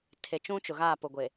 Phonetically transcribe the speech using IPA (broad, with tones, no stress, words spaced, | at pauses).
tʰe˨t͡ʃũ˦t͡ʃʊ˨ɣaː˦˨ pʊ˨ɡʷe˨